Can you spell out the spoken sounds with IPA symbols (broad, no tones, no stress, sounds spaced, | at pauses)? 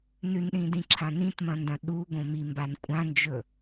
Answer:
n ʉ n ɗ ĩː d ĩ ǁʰ ã n ĩ t m ɐ̃ n d ɐ̃ ɗ u ɡ õ m i m b a n kʷʼ ã n d͡ʒ ɵ